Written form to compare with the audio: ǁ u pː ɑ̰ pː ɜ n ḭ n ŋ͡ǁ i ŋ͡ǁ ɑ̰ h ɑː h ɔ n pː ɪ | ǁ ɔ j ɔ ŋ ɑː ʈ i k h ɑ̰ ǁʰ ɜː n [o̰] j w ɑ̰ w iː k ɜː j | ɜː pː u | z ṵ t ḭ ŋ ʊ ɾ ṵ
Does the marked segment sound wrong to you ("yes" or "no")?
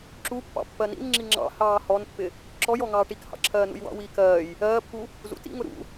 yes